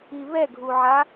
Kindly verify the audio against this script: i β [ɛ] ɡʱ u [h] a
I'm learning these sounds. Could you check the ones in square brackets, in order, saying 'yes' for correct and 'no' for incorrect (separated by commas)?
yes, no